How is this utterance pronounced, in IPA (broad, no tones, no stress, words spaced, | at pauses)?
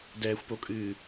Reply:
dɛːxʷpokʼɨː